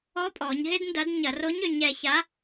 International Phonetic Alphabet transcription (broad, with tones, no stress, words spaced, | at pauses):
ɔ˧˥pʼɔ˩˧ɲ ɦɪ˥dndɐ˧˥d ɲɐ˧˩˧ro˧˥ɲø˩˧ɲɛ˩˧ ça˧˥